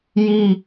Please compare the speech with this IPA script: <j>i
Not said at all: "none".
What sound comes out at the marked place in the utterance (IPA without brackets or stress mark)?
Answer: j